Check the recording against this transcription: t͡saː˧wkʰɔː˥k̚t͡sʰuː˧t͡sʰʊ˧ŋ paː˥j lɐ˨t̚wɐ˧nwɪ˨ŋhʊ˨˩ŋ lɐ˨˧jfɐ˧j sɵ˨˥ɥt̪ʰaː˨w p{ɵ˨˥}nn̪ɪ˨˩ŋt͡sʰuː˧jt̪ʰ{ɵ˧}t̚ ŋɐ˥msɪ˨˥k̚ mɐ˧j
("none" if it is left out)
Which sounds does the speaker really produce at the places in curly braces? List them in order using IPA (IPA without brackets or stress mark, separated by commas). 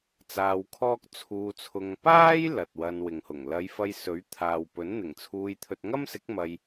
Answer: ɵ˨˥, ɵ˧